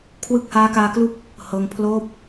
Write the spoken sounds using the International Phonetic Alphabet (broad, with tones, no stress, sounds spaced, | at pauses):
kʰ w ɯ˦˥ k̚ h aː˦˥ k aː˧ k l u˦˥ k̚ | h ɤː˧ ŋ pʰ l oː˦˥ p̚